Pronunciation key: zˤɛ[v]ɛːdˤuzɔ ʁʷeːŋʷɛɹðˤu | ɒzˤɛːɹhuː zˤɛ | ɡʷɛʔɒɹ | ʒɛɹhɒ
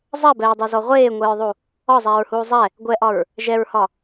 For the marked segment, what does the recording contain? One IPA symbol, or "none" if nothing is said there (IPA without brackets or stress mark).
b